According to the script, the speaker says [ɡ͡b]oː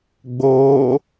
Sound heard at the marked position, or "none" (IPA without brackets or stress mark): ɡ͡b